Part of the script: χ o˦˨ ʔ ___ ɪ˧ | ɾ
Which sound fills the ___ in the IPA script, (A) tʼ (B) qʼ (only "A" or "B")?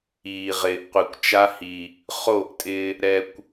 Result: A